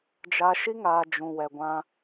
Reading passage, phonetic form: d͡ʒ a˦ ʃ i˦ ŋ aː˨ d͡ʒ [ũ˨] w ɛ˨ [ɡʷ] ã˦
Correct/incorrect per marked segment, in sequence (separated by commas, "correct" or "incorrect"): correct, correct